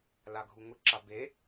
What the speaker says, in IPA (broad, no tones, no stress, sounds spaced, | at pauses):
l a ɡʱ u ŋ ʊ ǁ a b e